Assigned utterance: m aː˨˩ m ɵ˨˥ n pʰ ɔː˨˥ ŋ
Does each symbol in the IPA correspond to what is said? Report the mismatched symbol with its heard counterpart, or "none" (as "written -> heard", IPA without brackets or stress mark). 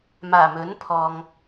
ɔː˨˥ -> ɔː˨